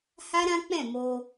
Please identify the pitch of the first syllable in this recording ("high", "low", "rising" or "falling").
high